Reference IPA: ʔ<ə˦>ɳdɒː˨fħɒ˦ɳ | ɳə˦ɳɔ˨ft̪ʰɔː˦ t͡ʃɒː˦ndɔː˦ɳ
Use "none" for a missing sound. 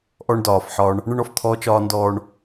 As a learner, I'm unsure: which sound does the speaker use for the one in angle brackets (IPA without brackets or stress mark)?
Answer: ɔ˦